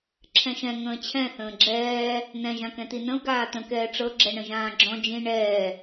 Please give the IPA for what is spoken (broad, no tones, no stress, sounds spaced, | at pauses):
ǁʰ ɛ̃ ʃ ɛ̃ ŋ ə̃ː t͡ɕʰ ɛ̃ θ ə̃ː ɡ͡ǁ ɛː | n ɛ̃ ʒ ã k ɛ̃ t i n ə̃ u̯ ɡ aː t̪ ə̃ k ɛː ʈ͡ʂ ɤ ɡ͡ǁ ɛ ɳ ə̃ ʒ ãː ɡ͡ǁ ɔ̃ d͡ʒ ĩ ɳ ɛː